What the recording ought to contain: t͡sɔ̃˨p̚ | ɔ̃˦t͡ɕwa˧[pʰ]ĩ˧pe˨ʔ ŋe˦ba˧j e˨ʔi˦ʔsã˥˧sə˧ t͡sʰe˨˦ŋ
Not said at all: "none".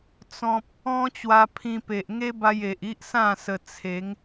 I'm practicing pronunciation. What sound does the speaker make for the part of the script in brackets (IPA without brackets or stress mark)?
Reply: pʰ